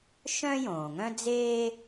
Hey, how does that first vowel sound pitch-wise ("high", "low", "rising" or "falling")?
high